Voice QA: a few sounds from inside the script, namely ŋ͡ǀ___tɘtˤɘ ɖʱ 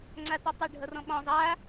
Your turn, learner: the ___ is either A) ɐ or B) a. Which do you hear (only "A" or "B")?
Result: B